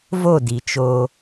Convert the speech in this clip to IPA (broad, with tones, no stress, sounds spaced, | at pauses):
v o˦˨ d i˨ t͡ʃ oː˧